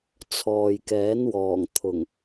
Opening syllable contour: low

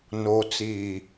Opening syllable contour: low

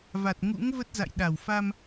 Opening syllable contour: low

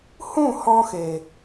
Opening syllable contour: falling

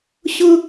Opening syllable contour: high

